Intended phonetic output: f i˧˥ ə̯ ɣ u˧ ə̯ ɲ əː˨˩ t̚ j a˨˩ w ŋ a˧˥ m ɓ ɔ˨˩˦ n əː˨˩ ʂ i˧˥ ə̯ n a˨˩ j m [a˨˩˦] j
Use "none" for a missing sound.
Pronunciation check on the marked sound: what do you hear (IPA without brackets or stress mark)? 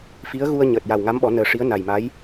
a˧˥